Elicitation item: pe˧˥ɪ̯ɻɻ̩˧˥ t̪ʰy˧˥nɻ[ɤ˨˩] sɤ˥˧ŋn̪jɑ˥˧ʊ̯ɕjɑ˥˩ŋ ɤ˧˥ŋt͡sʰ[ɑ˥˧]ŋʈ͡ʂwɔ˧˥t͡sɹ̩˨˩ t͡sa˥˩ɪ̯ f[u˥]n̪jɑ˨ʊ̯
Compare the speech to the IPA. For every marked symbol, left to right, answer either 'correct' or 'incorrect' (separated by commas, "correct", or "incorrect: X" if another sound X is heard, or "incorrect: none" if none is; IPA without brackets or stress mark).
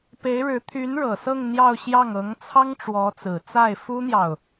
correct, incorrect: ɑ˥, correct